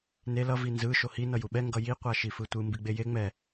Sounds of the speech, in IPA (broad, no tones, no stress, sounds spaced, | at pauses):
n e l ʌ v i n z ɯ ʃ o h i n ʌ j u ɓ ɛ ŋ ɡ ʌ j i qʷ a ʃ i f ɯ tʷ ɯ m b i ɡ͡b e j e ŋ͡m ɛ